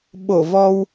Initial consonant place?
labial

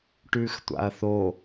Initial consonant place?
retroflex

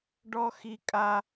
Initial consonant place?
retroflex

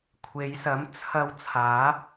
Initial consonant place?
velar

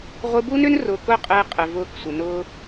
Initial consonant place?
uvular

